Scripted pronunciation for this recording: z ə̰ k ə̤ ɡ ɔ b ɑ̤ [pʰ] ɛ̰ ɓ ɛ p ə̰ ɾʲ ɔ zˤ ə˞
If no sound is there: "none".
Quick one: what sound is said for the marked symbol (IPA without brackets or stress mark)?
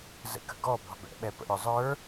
b